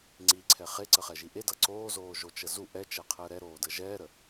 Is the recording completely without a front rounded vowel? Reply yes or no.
yes